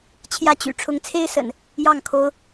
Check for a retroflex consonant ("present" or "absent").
present